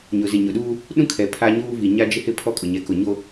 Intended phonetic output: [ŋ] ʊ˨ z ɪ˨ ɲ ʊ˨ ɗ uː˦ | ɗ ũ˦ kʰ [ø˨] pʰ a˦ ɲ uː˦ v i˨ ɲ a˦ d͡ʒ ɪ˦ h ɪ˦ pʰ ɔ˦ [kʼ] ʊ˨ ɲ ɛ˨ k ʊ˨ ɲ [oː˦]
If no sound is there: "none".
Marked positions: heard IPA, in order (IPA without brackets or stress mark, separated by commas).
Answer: ɲ, ɛ˨, kʼ, o˦